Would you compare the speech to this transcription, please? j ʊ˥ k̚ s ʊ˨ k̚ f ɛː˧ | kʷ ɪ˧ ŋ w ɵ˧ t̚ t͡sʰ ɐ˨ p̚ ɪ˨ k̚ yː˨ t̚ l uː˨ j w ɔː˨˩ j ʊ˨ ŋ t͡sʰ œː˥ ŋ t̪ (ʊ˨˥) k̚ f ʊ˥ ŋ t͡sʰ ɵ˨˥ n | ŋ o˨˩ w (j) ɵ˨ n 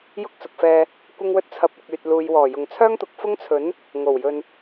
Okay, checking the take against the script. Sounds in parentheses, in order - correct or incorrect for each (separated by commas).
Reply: incorrect, correct